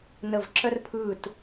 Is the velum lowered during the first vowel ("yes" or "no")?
no